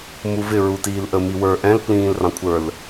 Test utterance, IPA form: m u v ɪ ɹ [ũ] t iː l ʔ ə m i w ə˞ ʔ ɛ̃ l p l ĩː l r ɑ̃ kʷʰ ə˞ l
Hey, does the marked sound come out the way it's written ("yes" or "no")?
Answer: no